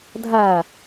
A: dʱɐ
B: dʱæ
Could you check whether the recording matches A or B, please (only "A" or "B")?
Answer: B